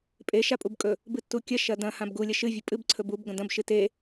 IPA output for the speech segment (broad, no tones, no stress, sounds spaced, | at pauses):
pʼ e ʃ a pʼ u b kʼ ɵ | b ɨ tː u kʲ ɐ ʃ ɐ d ɐ̃ h ã b ɡ u lʲ ɐ ʃ ɨ vʲ ɨ pʼ ɨ b ǀʰ ɵ b u b ɡ ɐ̃ d ɐ̃ b ʃ ɨ t e